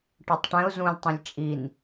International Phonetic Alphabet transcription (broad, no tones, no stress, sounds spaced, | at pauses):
ʈ ɔ tˤ ʈ ɛ̃ ʊ̯ z ũ lʲ tˤ ĩ lʲ t͡ʃʼ i n